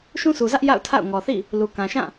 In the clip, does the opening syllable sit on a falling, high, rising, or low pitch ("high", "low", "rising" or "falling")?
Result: high